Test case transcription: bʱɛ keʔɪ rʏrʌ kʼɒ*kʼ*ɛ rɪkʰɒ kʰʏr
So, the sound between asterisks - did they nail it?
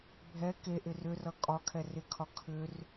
no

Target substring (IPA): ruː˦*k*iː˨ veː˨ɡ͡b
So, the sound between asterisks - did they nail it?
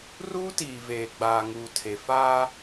no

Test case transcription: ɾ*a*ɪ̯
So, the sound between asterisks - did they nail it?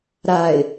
yes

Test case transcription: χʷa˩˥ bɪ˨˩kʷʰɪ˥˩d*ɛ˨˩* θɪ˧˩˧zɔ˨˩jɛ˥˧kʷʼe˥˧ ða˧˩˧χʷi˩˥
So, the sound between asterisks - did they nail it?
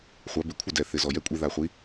yes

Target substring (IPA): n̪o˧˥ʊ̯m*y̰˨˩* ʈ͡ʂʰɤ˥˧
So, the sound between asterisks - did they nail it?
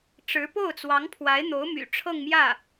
yes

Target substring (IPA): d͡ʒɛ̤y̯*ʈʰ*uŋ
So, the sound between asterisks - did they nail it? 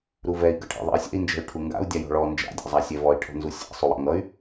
yes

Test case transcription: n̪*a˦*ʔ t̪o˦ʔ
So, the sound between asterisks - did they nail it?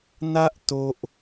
yes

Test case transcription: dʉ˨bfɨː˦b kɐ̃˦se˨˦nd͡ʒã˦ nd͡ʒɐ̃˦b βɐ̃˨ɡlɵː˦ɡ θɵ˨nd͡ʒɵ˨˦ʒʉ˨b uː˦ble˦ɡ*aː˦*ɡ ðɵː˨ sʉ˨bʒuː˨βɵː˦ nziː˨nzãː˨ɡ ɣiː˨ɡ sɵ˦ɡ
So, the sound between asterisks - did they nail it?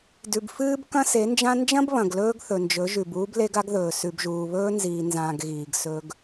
no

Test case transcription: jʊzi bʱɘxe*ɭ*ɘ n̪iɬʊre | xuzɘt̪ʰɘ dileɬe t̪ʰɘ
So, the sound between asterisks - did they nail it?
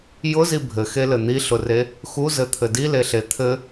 no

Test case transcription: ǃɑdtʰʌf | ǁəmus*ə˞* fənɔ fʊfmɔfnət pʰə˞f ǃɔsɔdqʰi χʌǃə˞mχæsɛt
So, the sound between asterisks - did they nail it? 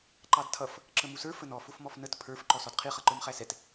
yes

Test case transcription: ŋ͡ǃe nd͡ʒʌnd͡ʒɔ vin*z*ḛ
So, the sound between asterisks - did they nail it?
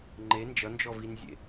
no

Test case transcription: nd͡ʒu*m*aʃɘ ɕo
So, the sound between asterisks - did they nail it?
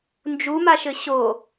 yes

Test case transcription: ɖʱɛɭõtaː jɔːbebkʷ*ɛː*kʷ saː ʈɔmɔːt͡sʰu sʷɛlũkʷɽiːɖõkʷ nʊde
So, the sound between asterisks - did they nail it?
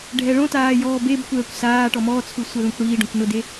yes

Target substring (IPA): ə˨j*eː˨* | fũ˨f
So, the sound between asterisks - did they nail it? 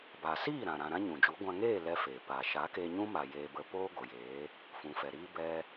no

